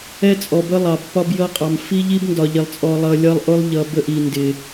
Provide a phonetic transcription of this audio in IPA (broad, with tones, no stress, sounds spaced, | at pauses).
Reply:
ɛ˦ t͡sʼ ɔ˨ b ə˦ lˠ ɑ˨ b p ɒ˦ b j ʌ˦ qʼ ɑ˨ m f i˦ ʎ i˦ b n d ɒ˨ ʎ ɪ˨ lˠ t͡sʼ ɔ˨ lˠ ʌ˨ lʲ ʌ˦ lˠ ʔ ʊ˦ lˠ ʎ ʌ˨ b ə˦ ʔ i˨ n d ɪ˨